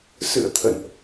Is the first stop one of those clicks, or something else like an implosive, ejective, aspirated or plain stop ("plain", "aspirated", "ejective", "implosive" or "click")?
aspirated